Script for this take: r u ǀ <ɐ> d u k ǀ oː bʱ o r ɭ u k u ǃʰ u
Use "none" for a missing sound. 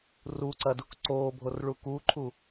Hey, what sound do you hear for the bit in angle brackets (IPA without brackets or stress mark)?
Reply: ɐ